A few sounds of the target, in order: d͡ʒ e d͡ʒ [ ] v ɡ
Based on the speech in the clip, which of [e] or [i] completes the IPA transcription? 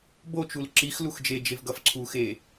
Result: e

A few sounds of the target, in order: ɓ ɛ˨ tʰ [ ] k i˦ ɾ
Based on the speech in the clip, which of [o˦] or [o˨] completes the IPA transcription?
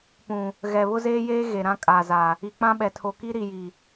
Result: o˨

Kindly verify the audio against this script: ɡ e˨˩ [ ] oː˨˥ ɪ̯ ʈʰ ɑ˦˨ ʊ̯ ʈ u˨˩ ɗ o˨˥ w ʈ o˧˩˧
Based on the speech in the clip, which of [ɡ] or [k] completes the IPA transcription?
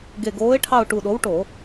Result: ɡ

